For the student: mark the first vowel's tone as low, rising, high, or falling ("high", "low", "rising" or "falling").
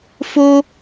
high